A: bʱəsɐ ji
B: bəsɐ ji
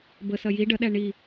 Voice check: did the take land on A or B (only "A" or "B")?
B